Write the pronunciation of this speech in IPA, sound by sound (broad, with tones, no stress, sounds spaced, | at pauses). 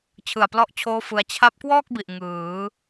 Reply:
t͡ɕʰ ɯ˨˩ a̯ p l ɔ˦˥ ʔ t͡ɕʰ oː˦˥ f ɯ˦˥ a̯ t͡ɕʰ a˦˥ p̚ k w ɔː˥˩ k̚ b i˨˩ ʔ ŋ ɯː˩˦